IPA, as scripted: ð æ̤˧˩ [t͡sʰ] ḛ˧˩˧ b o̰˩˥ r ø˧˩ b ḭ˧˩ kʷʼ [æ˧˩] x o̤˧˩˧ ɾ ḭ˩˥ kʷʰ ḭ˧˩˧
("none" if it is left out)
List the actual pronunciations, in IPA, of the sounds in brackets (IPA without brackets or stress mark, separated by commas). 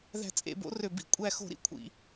t͡sʼ, æ˧˩